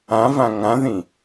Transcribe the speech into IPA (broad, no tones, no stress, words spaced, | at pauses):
ãvã ŋãðĩ